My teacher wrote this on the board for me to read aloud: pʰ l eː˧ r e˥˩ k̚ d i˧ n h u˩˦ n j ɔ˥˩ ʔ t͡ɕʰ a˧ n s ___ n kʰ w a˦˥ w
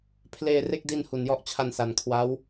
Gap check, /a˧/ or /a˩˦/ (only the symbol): a˩˦